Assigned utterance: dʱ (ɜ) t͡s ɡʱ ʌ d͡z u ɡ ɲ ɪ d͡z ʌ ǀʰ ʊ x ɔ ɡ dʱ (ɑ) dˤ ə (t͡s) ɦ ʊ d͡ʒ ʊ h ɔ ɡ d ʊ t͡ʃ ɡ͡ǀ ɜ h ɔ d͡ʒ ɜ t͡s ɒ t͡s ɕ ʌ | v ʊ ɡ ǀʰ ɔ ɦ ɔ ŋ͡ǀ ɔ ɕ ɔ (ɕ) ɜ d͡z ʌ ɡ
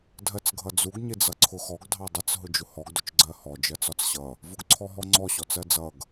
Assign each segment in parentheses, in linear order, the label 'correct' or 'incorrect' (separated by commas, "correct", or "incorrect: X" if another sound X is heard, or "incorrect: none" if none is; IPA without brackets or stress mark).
correct, correct, correct, incorrect: t͡s